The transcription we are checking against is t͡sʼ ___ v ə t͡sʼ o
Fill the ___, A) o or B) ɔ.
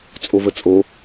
A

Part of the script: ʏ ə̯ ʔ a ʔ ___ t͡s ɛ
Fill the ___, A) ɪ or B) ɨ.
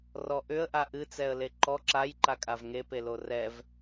B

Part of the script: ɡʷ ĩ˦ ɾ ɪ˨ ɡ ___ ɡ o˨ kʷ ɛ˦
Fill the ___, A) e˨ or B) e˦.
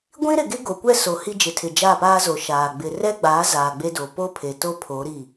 B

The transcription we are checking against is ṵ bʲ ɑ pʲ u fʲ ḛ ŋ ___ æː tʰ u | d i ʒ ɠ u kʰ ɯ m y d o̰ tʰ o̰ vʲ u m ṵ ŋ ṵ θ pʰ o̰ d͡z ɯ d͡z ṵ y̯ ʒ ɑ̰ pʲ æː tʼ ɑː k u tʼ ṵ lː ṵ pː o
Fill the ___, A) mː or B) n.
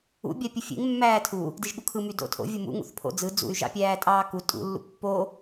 A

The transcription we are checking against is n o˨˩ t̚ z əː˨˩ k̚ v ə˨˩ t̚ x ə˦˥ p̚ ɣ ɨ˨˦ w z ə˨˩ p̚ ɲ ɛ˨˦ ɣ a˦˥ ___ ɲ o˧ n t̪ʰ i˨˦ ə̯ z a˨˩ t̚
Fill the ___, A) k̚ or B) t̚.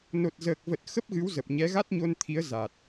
B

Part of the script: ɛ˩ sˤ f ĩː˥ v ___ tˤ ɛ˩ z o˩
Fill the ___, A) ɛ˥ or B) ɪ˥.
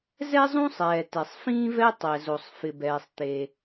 A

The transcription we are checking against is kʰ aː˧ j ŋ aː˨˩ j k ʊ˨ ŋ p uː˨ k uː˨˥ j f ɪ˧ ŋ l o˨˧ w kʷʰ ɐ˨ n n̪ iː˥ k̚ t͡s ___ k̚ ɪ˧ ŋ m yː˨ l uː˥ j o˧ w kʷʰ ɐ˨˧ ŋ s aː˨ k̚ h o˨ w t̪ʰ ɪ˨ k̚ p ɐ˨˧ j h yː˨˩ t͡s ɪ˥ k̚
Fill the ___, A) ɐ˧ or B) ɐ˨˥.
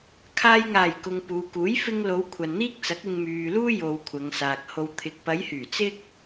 B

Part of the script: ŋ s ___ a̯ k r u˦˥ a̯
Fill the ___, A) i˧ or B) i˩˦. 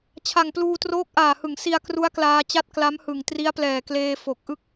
A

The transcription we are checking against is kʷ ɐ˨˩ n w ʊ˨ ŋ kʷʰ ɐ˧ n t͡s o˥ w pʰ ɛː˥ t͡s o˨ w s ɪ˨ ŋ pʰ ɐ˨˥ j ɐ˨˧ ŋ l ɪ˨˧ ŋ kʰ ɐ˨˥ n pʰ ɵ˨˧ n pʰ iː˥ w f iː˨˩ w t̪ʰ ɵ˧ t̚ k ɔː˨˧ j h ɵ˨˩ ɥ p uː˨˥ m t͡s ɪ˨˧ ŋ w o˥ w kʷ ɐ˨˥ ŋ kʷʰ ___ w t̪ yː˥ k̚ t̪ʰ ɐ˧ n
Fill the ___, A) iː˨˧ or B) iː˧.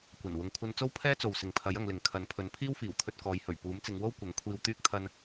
B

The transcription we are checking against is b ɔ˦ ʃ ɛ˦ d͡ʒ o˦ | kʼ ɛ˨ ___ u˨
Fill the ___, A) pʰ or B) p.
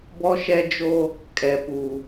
B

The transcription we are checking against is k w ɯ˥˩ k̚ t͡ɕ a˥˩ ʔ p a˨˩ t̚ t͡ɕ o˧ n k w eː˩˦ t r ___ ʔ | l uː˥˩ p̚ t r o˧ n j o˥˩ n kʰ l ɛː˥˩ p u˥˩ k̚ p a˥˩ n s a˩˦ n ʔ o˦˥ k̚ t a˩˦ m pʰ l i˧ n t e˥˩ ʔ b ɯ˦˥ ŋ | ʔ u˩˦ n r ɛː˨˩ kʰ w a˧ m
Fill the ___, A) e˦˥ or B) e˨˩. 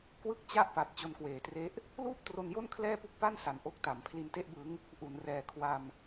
A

